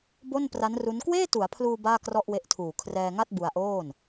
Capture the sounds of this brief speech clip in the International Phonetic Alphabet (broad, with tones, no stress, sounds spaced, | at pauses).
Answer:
b o˥˩ n p r a˦˥ n r u˦˥ n k w eː˥˩ t u˩˦ a̯ pʰ l uː˧ b aː˥˩ k r ɔ˥˩ ʔ w e˦˥ ʔ tʰ uː˨˩ kʰ r ɛː˧ ŋ a˥˩ t̚ b u˧ a̯ ʔ oː˥˩ n